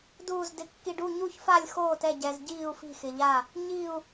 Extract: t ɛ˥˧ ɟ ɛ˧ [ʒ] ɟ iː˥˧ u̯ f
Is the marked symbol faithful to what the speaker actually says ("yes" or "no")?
no